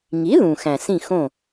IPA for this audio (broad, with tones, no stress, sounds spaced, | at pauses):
ŋ i˩˥ ð ũ˩ x æ̃˩ s ĩ˥˩ x õ˥˩